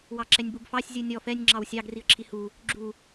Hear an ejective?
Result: no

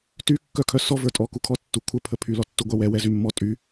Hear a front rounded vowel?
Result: yes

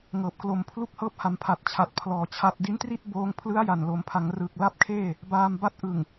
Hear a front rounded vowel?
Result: no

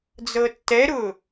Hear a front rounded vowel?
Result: no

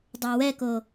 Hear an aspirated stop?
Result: no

